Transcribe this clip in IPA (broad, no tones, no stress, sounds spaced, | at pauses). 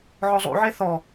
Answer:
ʕ ɔ zˤ ṵ ʕ e θ ɔ